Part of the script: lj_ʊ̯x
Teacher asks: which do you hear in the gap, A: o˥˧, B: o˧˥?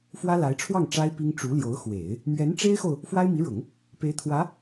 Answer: B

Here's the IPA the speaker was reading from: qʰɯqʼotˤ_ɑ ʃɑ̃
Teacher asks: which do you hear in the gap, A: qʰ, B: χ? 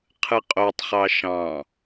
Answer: B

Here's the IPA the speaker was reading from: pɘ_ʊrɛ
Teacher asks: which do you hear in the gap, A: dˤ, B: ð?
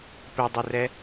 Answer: A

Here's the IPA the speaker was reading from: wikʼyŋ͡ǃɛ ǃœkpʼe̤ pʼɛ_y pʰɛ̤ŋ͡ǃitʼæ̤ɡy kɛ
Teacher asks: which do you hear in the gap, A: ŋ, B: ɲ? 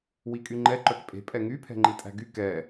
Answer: A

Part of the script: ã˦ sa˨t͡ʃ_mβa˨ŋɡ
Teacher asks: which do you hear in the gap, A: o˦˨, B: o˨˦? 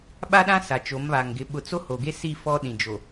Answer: B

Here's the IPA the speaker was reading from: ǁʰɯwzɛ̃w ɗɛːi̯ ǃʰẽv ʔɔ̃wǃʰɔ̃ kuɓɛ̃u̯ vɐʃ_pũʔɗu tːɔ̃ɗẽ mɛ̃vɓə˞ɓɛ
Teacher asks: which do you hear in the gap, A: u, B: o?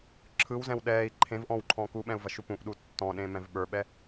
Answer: A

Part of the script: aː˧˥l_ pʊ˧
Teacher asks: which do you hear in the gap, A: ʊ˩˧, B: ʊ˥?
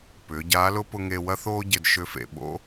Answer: B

